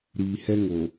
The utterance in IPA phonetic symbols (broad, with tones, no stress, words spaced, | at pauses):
ɾiː˨hɛ˦ ŋo˨